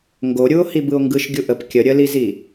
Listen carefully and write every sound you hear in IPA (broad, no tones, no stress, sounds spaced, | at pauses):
ŋ ɡ o ɾʲ u o̯ h i b ɯ o̯ ŋ ɡ ɯ ʃ ɡʲ u ʔ ə p kʲ ə ɾʲ ə l i z i